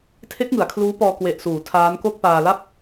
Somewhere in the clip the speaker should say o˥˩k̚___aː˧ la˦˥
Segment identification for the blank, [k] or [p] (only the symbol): p